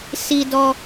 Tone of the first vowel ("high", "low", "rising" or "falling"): low